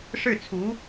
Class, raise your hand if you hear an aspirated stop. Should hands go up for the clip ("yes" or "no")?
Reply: yes